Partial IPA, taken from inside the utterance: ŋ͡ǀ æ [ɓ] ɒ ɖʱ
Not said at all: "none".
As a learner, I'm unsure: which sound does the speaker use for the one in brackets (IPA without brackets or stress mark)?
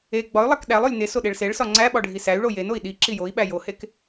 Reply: ɓ